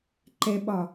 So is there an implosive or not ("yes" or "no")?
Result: yes